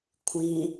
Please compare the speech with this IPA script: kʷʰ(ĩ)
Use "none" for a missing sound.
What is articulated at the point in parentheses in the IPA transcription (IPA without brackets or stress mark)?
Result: ĩ